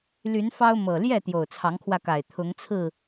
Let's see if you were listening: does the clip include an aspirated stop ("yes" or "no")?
yes